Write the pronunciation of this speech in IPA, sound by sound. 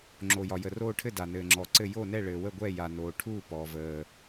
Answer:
ŋ͡ǁ o˩ j ɒ˩ j ə˩ r oː˥˨ ʈʰ ɘ˥˨ d a˩ n ɘː˩ ŋ͡ǁ ɔ˩ ǀ ɘ˥˨ j o˥˨ n ɛ˥˨ ɭ ɘː˩ w ə˥˨ ɡʷ ɛ˥˨ j a˩ n oː˩ ʈʰ u˥˨ p ɔ˩ v əː˩

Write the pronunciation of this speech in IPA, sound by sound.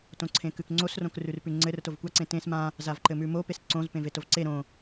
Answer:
t õ ǀʰ ẽ k ʉ k ŋ͡ǀ o s r õ k r ʉ r p ʉ ŋ͡ǀ ɘ r t o v kʷ a ǀ ẽ t ẽ s m ã | z a v ǃ ɘ m ʉ m o p e s ǀ õ z p ẽ v e t o v ǀ e ɾ õ

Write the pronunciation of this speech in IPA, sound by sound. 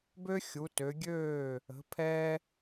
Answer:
b ø˦ xʲ u˨˦ t ø˨˦ ɡʲ øː˥˨ | ə̤˨˦ pʰ ɛ˦

